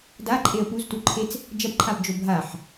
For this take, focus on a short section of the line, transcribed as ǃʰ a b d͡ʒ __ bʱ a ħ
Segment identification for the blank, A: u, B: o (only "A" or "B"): B